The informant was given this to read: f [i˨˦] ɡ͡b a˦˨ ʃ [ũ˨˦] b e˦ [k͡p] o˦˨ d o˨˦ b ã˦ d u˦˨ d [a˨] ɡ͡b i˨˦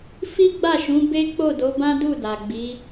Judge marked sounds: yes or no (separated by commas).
no, yes, yes, yes